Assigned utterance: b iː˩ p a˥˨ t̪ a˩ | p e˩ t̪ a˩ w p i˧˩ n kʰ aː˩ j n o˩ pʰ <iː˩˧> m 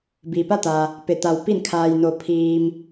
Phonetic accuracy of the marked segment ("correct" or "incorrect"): incorrect